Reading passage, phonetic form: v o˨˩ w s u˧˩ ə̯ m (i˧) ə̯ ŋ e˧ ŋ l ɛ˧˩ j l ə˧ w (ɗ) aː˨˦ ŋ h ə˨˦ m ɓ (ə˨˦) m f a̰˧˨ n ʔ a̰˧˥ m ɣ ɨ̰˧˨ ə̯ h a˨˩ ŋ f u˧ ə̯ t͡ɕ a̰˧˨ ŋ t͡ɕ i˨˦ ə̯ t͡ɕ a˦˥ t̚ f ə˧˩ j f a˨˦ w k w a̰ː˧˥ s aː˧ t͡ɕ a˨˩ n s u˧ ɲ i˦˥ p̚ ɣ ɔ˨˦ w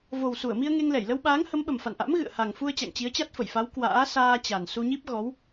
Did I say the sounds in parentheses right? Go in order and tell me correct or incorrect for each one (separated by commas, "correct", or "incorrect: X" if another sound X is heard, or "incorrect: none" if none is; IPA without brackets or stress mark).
correct, incorrect: ɓ, incorrect: ə˨˩